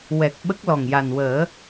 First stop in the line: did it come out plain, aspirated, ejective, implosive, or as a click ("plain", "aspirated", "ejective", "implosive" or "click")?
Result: plain